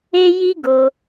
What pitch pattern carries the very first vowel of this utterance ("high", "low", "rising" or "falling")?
high